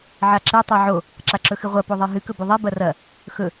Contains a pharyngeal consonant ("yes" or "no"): yes